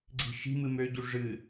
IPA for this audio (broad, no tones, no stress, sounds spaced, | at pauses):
ɡ͡ǀ i̤ ʃ i̤ m ɨ m ø ɟ u ʐ ɨ